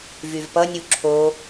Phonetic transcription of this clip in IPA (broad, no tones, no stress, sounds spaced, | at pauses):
v y v p ʌ nʲ u ǁʰ o